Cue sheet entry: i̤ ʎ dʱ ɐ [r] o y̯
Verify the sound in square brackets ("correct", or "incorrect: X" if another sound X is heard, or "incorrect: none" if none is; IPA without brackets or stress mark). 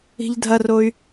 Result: correct